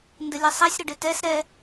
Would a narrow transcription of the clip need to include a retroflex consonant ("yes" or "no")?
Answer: yes